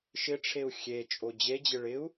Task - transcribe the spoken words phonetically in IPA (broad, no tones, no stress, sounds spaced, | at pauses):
ʃ ɪ ʈ͡ʂʰ e u̯ xʲ e t͡ʃʼ o d͡ʑ e d͡ʑ ɪ ɭ ɪ u̯